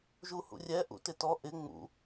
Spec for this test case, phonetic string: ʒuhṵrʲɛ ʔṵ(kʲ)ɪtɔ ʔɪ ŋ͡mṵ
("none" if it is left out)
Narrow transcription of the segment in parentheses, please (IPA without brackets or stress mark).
t